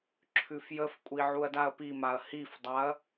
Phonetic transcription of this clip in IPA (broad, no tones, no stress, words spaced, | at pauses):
ǁʰʉfjəfkʷʼi ʕuɐ̯daɐ̯pimaɐ̯ hifdˤaɐ̯